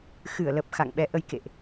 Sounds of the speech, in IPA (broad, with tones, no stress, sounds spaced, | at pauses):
x ɨ˧˩ ə̯ l ə˨˩ p̚ x a̰˧˨ ŋ ɓ ɛ˨˦ ʔ ə˧ j k ḛ˧˨ ʔ